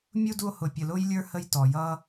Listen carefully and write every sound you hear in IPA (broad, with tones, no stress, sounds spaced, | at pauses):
mʲ u˥ d u˦ o̯ h ʊ˨ pʲ ə˨ l ʊː˥ j lʲ ə˞˥ h ə˦ j t ɔ˩ j ʌː˦